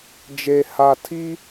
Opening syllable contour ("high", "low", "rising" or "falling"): low